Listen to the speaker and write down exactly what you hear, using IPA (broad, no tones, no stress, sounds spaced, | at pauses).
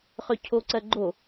χ ø cʰ o ǀ ɜ ɡ͡ǃ o